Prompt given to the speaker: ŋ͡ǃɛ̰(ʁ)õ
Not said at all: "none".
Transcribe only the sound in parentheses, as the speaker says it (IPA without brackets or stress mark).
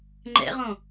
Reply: ʁ